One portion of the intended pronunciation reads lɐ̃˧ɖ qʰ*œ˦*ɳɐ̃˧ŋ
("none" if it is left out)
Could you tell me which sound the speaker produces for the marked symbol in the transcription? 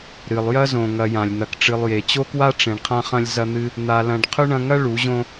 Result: ɵ˦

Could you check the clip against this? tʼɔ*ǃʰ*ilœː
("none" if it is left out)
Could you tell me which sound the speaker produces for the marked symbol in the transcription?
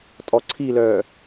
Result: ǀʰ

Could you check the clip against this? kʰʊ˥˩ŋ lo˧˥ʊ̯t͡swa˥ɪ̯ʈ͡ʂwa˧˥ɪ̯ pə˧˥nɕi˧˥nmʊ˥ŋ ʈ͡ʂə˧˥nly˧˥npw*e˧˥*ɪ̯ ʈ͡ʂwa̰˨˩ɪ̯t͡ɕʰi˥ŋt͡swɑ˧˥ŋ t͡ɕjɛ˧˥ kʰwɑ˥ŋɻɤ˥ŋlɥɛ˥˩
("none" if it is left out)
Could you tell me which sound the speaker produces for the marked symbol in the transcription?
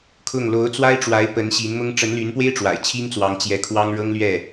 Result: e˥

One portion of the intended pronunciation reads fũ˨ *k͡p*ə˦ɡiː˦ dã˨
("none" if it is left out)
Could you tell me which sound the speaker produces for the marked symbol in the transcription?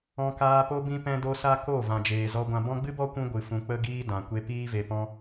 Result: k͡p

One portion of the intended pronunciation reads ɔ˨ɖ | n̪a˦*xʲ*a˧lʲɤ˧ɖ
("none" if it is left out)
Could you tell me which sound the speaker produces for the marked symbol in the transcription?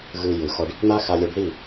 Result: x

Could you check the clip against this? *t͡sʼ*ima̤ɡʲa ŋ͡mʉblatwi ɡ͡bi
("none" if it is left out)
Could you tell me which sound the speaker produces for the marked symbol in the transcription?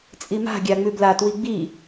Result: t͡sʼ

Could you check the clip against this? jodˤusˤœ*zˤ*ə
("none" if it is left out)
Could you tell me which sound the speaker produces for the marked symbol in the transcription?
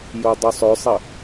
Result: sˤ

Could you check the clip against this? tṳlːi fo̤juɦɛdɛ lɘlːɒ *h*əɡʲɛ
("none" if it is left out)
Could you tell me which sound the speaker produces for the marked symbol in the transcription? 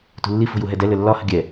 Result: h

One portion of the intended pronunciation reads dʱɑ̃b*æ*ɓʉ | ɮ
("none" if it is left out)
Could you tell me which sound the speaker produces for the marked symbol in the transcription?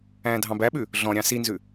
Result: æ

